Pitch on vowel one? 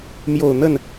low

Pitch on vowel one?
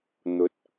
rising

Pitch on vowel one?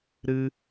high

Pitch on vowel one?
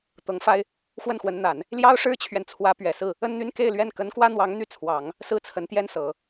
rising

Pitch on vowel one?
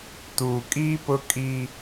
low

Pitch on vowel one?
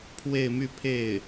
falling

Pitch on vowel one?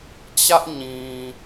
high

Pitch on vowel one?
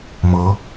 rising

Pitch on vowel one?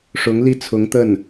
rising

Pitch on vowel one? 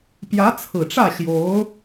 rising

